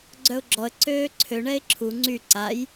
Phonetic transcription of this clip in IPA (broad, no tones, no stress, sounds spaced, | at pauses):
ɡ͡ǀ œ ʊ̯ ɡ͡ǁ ɔ ə̯ ǀ øː ǀʰ ø ɳ ɛ ɪ̯ ǁʰ u ŋ͡ǀ y ǀ a j